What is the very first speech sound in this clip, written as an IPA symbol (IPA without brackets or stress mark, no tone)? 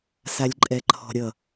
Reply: s